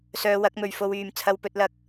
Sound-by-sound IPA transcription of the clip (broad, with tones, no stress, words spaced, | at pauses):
sœː˧wɐ˨˥k̚mɵ˨ɥ fo˧wyː˨m t͡sʰɐ˧wpɵ˧t̚lɐ˨˥k̚